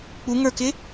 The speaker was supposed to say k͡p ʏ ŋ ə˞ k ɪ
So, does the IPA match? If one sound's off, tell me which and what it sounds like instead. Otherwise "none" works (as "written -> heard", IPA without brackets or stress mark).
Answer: ʏ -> u